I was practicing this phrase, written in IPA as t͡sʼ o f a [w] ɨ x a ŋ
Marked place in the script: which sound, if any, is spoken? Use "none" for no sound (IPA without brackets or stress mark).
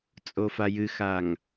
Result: j